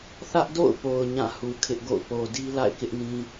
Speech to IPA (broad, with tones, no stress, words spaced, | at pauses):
θä˦ʔdo̰˦˨ʊ̯po˨ʊ̯ ɲã˦˨hu˨ kʰɪ˦ʔɡo̰˦˨ʊ̯ po˨di˦ la̰˦˨ɪ̯kɪ˦ʔnĩ˦